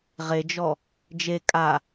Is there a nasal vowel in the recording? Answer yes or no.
no